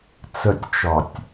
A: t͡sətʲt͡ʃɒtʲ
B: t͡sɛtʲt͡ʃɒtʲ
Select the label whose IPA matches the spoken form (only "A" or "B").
A